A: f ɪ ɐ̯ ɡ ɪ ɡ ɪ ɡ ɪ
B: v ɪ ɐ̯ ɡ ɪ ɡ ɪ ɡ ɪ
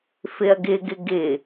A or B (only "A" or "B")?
A